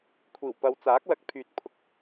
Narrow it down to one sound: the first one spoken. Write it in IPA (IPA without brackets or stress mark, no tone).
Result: kʷʰ